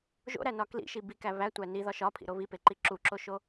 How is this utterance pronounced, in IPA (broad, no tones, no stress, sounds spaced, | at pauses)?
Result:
ʒ o̰ ɾ æ n ɒ k l ḭ ʃ i b i k æ β æ tʷ æ n i ð ɒ ʃ ɒ pʰ ḭ ɾ o β i p e ǃ i ǁ u ǁ o ʃ o